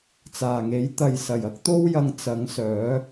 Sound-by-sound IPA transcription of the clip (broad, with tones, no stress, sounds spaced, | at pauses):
t͡s aː˨˩ ŋ e˨˥ j t̪ ɐ˨ j s ɐ˨˩ j ɐ˥ k̚ t̪ o˥ w j ɐ˧ ŋ t͡s ɐ˨˥ ŋ s œː˨˥